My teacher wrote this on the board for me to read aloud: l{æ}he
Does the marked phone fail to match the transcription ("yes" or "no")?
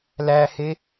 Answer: no